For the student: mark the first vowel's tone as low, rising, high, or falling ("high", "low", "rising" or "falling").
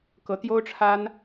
rising